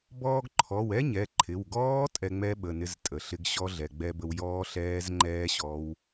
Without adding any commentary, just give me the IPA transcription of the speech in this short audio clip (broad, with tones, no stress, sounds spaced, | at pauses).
b ɔː˧ ɡ ǃʰ ɔ˩˧˩ w ɛ˦˥ ɲ ɛ˩˧˩ ǃʰ ɪ˩˧˩ w ɡ ɔː˦˥ tʼ ɛ˧ ŋ͡m ɛ˦˥ ɓ ə˩˧˩ n ɪ˦˥ z tʼ ə˩˧˩ ɬ ɪ˦˥ ɡ ɕ ɔ˦˥ ɮ ɛ˩˧˩ ɡ͡b ɛ˧ b ə˧ w j ɔː˦˥ ɬ ɛː˦˥ z ŋ͡ǃ ɛː˦˥ ɕ ɔ˦˥ w